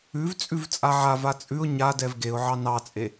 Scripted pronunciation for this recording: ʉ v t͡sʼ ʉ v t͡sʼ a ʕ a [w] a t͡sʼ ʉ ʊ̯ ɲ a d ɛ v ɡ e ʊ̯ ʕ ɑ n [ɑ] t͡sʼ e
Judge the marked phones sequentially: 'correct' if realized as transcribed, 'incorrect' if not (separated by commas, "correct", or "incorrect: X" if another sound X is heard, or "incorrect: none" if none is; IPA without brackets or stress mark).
incorrect: v, correct